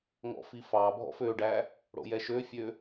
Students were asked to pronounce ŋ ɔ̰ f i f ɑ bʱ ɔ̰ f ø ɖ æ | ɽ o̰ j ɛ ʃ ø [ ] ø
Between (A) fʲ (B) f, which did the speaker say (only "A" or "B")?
A